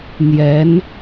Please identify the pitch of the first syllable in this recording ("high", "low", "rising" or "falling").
rising